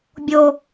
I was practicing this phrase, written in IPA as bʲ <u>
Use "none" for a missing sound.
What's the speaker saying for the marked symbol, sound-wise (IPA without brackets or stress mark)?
o